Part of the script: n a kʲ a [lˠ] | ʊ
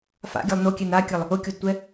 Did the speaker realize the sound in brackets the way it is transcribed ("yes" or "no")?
yes